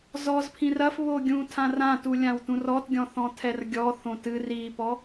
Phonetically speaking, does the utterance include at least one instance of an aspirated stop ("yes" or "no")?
yes